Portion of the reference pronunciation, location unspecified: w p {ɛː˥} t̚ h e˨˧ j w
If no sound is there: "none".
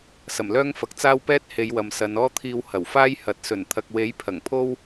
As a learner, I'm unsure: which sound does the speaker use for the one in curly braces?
ɛː˥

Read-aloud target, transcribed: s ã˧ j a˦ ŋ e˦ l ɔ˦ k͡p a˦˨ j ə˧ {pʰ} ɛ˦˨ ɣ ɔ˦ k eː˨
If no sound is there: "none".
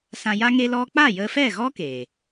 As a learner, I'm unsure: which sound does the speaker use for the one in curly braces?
f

